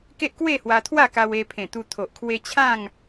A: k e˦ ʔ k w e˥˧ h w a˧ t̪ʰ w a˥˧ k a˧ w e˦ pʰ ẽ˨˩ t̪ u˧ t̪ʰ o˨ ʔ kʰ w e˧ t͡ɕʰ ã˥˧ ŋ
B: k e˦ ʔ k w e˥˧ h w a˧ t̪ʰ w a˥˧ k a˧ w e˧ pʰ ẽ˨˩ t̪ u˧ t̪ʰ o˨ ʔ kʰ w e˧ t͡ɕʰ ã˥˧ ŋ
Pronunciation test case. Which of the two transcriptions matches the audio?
B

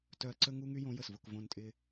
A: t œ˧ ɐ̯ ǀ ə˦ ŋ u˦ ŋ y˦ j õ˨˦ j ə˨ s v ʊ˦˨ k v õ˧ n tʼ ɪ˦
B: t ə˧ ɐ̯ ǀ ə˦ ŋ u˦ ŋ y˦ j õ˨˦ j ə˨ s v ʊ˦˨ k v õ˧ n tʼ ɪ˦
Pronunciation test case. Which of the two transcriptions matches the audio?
A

